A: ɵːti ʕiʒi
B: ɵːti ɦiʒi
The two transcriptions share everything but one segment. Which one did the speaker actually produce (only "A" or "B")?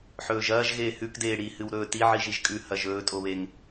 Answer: A